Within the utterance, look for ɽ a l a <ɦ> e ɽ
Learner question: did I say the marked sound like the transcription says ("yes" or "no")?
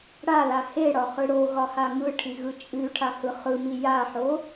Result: no